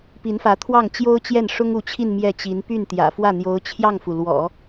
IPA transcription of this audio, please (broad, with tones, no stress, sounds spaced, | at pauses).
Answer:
p i˧˥ n f ä˧˥ t̪ʰ w ɑ˥˩ ŋ t͡ɕ j o˥ ʊ̯ t͡ɕ j ɛ˥˩ n ʂ ʊ˥ ŋ u˧˥ t͡ɕʰ i˥˧ n m j ɛ˥˩ t͡ɕ i˧˥ n p y˥˩ n t̪ j ä̰˨˩ f w ä˥˩ n̪ j o˧˥ ʊ̯ t͡ɕʰ j ɑ˥˩ ŋ f u˩ l w ɔ̰˨˩˦